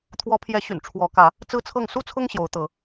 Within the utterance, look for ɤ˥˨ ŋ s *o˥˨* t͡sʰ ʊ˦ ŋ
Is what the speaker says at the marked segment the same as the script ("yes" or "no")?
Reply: no